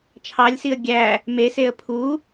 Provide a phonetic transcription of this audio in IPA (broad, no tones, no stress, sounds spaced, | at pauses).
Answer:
t͡ʃʰ ɑ lʲ s i ə̯ ɡʲ æ | m e s e ə̯ pʰ u